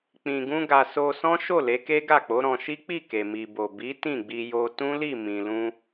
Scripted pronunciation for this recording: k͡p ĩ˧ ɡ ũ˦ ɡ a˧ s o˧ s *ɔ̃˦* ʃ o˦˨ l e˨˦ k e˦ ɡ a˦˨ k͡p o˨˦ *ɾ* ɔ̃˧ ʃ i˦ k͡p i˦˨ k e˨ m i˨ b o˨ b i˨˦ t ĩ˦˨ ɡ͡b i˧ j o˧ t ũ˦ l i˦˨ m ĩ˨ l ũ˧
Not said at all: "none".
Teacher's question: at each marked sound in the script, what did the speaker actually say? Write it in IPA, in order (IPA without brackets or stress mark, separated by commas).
ɔ̃˦, ɾ